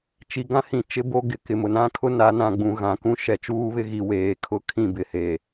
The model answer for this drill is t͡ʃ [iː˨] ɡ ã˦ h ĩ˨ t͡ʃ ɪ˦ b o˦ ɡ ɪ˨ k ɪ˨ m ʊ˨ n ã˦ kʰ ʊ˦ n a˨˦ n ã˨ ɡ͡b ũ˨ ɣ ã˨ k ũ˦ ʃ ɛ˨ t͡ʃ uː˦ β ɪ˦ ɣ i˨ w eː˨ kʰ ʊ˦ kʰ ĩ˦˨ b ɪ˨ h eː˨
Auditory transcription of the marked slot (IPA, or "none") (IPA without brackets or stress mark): i˨